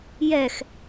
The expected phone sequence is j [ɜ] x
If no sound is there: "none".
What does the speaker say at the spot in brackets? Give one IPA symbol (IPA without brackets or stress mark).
ɛ